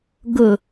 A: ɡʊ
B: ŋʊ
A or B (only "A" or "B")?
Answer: A